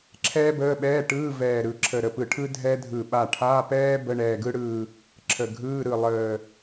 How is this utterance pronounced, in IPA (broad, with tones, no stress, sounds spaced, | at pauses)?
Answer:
ǁʰ ɛː˥ b əː˧˥˧ ɓ ɛː˧˥˧ ʈ ɯː˧˥˧ v ɛː˧˩ ɾ ɯ˧˩ ǁʰ ə˧˩ ɾ ə˧˩ p ɯ˧˩ ʈʰ ɯ˥ dʱ ɛ˥ dʱ ɯ˧˩ ɓ a˧˩ ʈʰ a˧˥˧ p ɛː˥ b ə˧˥˧ ɳ ɛː˧˩ ɡ ɯ˥ ɽ ɯː˧˩ | ǁʰ ə˧˩ ɡʱ ɯː˧˥˧ ɾ ɯ˧˩ lˠ əː˧˩